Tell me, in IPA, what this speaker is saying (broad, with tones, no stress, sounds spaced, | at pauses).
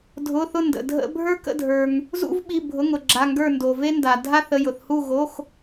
dʱ ʊ˩˧˩ θ ʊ˧˩ n d ə̰˩ dʱ ə̰˧ bʱ ə˞˧ k ə̰˧˩ dʱ ə˞˩ ŋ | z ṵ˧ v ɓ i˩˧˩ bʱ ʊ˩˧˩ ŋ ʊ˩ ɡ͡ǁ a˩˧˩ ŋ ɡ ə˞˧˩ n d o˩ v e˧ n d a˩ dʱ a˧ θ ə˩˧˩ j ʊ˩ θ h u˧˩ ɣ o˩˧˩ x